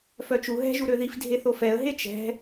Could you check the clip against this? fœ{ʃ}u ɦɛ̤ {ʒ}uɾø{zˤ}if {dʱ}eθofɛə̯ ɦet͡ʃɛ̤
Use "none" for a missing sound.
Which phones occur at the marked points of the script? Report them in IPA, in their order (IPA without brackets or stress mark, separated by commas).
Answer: t͡ʃ, ʒ, ð, dʱ